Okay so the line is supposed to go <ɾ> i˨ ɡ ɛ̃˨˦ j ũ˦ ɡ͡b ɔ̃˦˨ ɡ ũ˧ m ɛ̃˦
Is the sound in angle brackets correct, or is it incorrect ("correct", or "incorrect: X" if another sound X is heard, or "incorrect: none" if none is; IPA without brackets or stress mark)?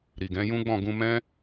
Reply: correct